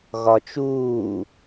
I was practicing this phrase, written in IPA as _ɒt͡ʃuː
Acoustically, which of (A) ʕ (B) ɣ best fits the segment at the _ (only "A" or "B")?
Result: B